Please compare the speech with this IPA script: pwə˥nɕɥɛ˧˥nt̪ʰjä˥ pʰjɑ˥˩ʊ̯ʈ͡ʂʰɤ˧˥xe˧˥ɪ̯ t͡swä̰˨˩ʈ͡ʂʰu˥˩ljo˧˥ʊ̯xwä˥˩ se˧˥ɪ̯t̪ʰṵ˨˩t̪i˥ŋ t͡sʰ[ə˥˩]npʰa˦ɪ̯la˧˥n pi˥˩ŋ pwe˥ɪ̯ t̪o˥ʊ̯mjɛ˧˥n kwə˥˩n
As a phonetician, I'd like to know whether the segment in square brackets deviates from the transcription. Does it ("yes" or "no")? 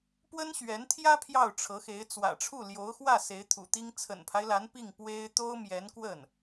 yes